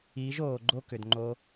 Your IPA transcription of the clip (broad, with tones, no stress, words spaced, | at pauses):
iː˨˦ʒoː˨ɡ͡ǃo˦˨ kʏ˨dŋ͡ǃo˧